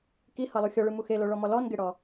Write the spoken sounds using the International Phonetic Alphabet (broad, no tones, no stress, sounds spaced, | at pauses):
k i h ɤ lˠ u xʲ ɔ ɭ ɯ m u x e l o ɭ ɔ m ɔ l ɔ n ɡ e ɽ ɔ